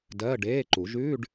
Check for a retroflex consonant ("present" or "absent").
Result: present